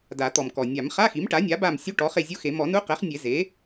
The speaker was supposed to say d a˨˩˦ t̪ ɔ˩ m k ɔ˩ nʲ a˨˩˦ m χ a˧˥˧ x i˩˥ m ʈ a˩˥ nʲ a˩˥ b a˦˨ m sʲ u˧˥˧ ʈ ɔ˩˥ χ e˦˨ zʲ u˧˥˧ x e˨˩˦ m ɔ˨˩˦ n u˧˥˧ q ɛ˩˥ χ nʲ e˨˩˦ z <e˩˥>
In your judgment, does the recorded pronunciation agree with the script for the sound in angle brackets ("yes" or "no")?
yes